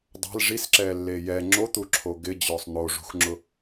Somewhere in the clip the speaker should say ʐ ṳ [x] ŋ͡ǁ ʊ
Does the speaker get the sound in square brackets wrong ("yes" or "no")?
no